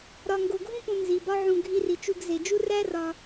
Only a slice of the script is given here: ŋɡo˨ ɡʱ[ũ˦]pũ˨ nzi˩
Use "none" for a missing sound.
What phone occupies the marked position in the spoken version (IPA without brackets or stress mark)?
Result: ũ˥